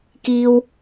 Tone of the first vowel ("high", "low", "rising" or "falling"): low